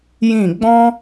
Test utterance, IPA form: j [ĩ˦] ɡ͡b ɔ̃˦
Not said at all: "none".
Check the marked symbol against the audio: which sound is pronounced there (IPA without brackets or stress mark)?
ĩ˦˨